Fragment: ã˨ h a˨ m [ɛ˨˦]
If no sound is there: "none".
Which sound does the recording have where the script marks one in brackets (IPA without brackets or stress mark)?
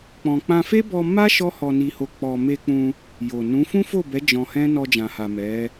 ɛ˨˦